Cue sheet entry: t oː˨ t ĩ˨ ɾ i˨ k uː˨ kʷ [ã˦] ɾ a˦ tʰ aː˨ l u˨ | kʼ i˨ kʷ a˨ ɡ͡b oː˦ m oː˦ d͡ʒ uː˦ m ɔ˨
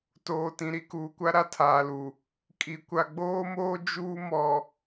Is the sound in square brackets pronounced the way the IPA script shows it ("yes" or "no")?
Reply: no